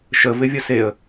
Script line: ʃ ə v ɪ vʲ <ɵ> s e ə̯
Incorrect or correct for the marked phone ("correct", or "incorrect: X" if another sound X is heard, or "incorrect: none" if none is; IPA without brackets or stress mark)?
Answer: incorrect: ə